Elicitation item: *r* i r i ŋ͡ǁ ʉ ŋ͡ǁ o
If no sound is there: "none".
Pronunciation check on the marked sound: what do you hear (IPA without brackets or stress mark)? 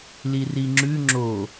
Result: l